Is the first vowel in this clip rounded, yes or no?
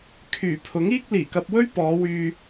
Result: yes